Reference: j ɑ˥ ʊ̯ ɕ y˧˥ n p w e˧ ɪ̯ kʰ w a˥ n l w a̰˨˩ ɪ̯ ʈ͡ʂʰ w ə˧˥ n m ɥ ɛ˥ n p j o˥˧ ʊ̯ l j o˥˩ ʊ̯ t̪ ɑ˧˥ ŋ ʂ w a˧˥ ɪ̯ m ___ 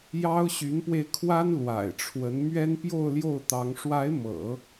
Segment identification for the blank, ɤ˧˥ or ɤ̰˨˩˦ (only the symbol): ɤ̰˨˩˦